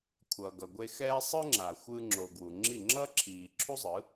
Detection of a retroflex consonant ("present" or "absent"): absent